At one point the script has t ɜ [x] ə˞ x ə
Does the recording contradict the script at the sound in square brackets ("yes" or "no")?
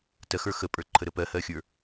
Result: no